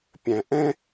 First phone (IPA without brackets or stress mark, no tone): pʲ